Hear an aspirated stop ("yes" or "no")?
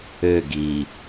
no